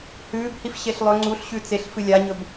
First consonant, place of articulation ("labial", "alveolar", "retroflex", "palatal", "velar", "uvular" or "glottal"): glottal